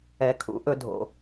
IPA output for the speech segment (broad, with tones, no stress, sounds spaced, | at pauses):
ɛ˧ kʰ ṵ˨˦ ʔ ɵ˧ dʱ o̰˨